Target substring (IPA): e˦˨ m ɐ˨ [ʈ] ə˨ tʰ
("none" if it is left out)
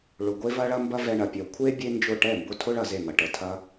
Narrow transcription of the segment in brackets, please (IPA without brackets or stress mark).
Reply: ʈ